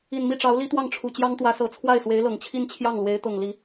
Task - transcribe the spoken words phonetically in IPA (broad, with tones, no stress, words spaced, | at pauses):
i˨˩nmi˥˩ʈ͡ʂɑ˧˥ʊ̯ li˥t̪wɑ˥˩ŋʈ͡ʂʰu˨˩ t͡ɕjɑ˥ŋt̪wä˧˥sɤ˨˩ t͡sʰwa˥˩ɪ̯swe˧˥ɪ̯lɤ˨˩ŋ t͡ɕʰi˥˧nt͡ɕʰjɑ˥˩ŋ lwe˧˥ɪ̯t̪ɤ˨˩ŋ li˧˥